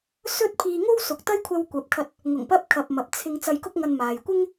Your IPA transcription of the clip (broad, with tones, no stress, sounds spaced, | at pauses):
s ɵ˥ t̚ pʰ iː˧ ŋ o˥ w s ʊ˨ k̚ t̪ ɐ˥ j kʷʰ ɐ˧ w kʷ ɐ˨˥ p̚ kʰ ɐ˧ t̚ | ŋ ʊ˨˩ ŋ p ɐ˧ p̚ kʰ ɐ˨ p̚ m ɐ˨ p̚ t͡sʰ ɪ˧ ŋ t͡s ɐ˧ j k ʊ˥ k̚ ŋ ɐ˧ n m aː˨ j kʷ ɪ˥ ŋ